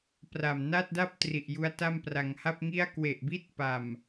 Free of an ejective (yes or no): yes